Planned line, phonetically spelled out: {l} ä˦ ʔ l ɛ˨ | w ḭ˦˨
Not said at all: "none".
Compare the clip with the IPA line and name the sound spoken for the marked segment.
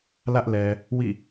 l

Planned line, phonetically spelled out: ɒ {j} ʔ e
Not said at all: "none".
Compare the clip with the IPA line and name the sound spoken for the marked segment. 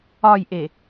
j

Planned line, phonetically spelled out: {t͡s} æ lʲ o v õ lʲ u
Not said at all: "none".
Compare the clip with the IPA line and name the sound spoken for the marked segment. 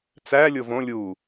t͡s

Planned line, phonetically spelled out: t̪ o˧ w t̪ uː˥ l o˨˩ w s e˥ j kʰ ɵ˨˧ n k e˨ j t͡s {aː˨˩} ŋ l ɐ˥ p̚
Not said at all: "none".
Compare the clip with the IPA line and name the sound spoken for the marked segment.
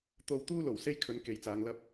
aː˨˧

